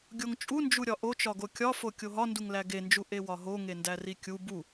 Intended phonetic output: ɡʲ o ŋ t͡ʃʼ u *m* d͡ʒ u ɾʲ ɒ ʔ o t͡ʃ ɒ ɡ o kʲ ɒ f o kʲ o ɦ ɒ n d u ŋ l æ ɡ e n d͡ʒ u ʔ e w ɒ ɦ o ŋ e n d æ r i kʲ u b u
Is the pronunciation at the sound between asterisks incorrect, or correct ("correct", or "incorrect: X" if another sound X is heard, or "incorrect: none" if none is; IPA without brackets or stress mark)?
incorrect: n